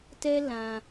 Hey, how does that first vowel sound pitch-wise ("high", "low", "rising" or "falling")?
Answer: high